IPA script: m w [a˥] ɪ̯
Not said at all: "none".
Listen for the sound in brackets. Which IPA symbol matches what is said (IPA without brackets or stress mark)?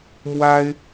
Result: a˥